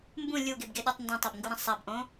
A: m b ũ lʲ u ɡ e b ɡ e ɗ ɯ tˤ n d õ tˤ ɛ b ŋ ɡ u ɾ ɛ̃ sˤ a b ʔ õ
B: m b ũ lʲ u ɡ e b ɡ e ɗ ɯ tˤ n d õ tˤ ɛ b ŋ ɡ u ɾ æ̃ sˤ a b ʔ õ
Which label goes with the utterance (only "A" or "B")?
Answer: A